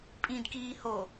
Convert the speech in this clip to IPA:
pʼ ĩ d k iː h o

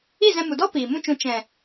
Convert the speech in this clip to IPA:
i˦˨ z ɛ̃˧ m u˨ d ɔ˦ p iː˨ m ũ˦ t͡ʃ ũ˧ t͡ʃ ɛ̃˨

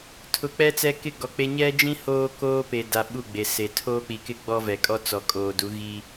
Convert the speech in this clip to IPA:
tʰ ʊ˨ k͡p ɛ˦ t͡s ɛ˦ k ɪ˦˨ ɡ ɔ˨ k͡p e˦ ɲ ɛ˦ d͡ʒ ĩ˦ h oː˦ k oː˦ p e˨ d a˨ ɓ u˦˨ ɡ͡b e˨ s e˨ tʰ oː˦ k͡p i˨ k ɪ˦ ɡ͡b ɔ˦ v ɛ˨ kʼ ɔ˦ t͡s ɔ˨ kʼ oː˨ d u˨˦ ɣ i˦

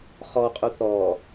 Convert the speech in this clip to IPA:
χ ɔ qʼ u t̪ ɔ

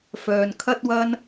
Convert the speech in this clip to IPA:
f œː˨ n kʰ ɐ˥ t̚ w ɐ˥ n

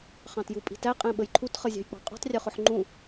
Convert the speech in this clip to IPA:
χ ɑ̃ t j u pʼ i̤ t æ qʼ ɛ̃ ɓ ə j ǃʰ u t χ ʌ zʲ ɑ̤ j k͡p ɑ̤ qʼ ṳ tˤ rʲ ʊ χ ʊ ħ ŋ͡ǃ ũ

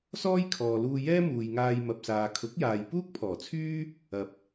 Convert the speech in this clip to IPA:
s ɔː˥ j kʰ ɔː˨ l uː˧ j ɛː˥ m uː˨ j ŋ aː˧ j m ɐ˨ p̚ s aː˨ kʰ ʊ˨˥ k̚ j aː˨ j p uː˥ k̚ pʰ ɔː˨˩ t͡sʰ yː˥ | ɐ˨˥ p̚

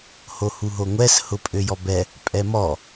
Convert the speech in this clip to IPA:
h o h u ɦ o ŋʷ ɛ s h ʊ pʼ ø j ɔ b ɛ | pʼ ɛ m ɔ

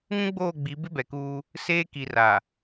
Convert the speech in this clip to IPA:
ŋ ũ˦ ɡ͡b oː˦˨ ɡ͡b i˨˦ b ɪ˦ b ɛ˨ k uː˦ | s eː˦ k i˨ r a˨

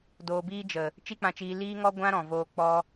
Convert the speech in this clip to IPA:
d oː˨ b iː˧ d͡ʒ ə˨ | t͡ʃ i˦ k͡p ã˧ t͡ʃ iː˧ l iː˦ ŋ ɔ˦ ɡʷ ã˦ ɾ ɔ̃˨ v oː˧ k͡p ɔ˧

